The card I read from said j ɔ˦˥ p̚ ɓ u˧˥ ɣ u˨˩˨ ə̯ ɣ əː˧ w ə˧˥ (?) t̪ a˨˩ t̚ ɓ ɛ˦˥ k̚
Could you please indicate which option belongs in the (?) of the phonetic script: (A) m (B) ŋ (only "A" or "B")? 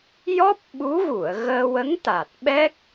B